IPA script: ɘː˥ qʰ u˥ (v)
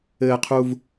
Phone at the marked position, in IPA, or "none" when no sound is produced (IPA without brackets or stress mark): v